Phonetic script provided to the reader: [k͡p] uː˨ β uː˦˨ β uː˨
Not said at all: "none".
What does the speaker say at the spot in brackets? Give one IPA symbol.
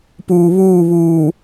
p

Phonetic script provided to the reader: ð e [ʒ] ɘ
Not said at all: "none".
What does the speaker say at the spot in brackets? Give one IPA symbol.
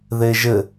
ʒ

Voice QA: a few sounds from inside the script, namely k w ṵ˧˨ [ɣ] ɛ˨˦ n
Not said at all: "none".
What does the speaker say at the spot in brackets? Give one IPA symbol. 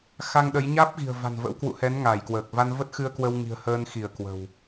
h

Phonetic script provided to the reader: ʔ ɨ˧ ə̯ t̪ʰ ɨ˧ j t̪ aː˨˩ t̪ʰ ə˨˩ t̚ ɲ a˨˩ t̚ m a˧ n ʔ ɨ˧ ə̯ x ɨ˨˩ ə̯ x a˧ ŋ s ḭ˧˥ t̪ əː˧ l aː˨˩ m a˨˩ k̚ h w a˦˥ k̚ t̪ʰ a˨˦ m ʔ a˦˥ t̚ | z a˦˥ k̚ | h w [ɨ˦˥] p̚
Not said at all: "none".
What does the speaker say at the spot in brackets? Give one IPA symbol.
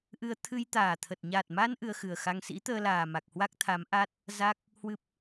ɨ˦˥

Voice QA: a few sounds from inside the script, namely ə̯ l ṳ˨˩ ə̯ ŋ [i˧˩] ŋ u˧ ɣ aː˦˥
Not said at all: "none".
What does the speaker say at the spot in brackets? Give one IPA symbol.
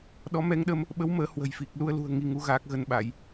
i˧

